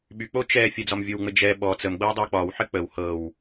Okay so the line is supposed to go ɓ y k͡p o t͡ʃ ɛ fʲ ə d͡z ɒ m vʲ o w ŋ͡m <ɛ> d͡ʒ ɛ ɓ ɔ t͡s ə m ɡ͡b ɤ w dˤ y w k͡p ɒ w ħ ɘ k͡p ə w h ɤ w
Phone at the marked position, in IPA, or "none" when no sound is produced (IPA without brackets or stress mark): ɘ